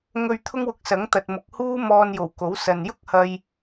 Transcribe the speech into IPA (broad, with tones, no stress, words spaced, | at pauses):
ŋɵ˧ɥ t̪ʰʊ˥ŋwʊ˧k̚sɐ˨˥ŋ t̪ɐ˨t̚ mʊ˨k̚huː˥ mɔː˧njo˨˩w ko˨˥wsɐ˨n jʊ˥k̚hɐ˧j